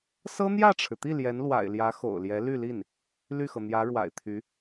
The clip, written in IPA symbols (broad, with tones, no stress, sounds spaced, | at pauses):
s ɤ˥ n̪ j ä˥˩ ʈ͡ʂʰ ɻ̩˩ t̪ i˥˩ l j ɛ˧˥ n l w a̰˨˩ ɪ̯ l j ä˧˥ x o̰˨˩ ʊ̯ l j ɛ˧˥ l y˥˧ l i˥˩ n | l y˥˩ x ɤ˩ n̪ j ä˧˥ ɻ w a̰˨˩ ɪ̯ t̪ʰ y˧˥